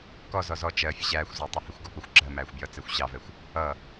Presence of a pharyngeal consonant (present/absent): absent